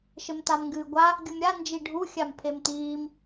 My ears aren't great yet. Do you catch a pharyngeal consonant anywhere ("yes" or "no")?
no